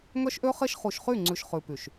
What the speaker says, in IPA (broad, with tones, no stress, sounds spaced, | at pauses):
ŋ œ˦ ʃ ʔ ø˦ χ e˦ ʃ χ u˨ ʃ χ y˦˨ ŋ͡ǀ ʉ˨ ʃ χ ʉ˨ p y˨ ʃ